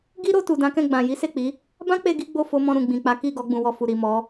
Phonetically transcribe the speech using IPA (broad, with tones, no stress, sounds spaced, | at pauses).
ɡ i˦ ɾ o˧ t u˨ d ã˨˦ k ɛ̃˦˨ ɡ͡b ã˨ j i˨˦ s e˦˨ k͡p i˨˦ | b ã˦ k͡p e˧ ɡ i˦ ɡ͡b o˦˨ f o˧ m ɔ̃˧ ɾ ũ˨ ɡ͡b ĩ˨ k͡p a˨˦ k i˦˨ ɡ ɔ˨˦ ɡ͡b ũ˧ w ɔ˧ f u˨ ɾ i˨ m ɔ˨˦